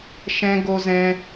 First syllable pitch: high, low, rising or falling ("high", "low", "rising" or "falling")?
high